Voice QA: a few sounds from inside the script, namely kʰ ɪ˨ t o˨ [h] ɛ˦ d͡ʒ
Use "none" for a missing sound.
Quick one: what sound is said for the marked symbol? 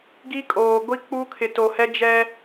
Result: h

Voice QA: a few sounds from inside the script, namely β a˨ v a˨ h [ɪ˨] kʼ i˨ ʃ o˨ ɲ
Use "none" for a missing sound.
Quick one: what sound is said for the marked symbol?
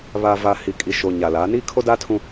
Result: i˨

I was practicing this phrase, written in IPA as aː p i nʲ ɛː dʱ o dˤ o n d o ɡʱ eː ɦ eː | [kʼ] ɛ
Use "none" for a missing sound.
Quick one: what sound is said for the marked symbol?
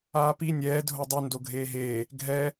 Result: ɡʱ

